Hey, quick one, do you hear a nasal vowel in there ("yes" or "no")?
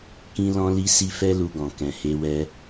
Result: yes